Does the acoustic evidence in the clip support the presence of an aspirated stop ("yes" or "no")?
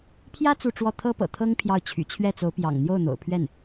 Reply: yes